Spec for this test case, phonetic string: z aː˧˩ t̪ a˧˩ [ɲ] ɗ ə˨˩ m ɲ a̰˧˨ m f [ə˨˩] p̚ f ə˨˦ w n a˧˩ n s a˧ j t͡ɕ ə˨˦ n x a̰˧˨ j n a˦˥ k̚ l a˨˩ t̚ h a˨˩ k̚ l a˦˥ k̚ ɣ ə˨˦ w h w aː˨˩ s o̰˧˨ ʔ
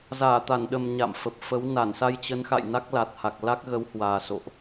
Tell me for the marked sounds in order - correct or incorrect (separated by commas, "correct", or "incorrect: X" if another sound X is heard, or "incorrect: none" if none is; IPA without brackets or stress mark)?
incorrect: n, correct